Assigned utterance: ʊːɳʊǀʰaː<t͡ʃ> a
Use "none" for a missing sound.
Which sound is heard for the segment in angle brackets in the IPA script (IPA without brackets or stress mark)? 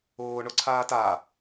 t